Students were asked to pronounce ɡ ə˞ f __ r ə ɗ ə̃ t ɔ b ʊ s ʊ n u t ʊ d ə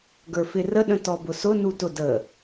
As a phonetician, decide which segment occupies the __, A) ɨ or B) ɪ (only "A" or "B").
B